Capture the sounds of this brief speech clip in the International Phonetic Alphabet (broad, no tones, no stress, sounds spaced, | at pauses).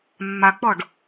mː a k͡p ɔ ɖ